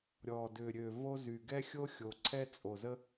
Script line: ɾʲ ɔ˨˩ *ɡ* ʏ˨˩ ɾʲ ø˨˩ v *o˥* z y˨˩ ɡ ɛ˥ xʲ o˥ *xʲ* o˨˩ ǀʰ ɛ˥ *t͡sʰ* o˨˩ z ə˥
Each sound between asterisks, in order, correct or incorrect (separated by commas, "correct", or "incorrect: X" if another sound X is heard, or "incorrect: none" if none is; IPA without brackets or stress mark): incorrect: d, correct, correct, incorrect: t͡sʼ